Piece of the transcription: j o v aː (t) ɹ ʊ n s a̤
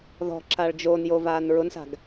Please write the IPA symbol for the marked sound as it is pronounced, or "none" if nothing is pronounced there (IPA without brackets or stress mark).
n